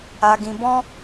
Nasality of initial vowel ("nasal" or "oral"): oral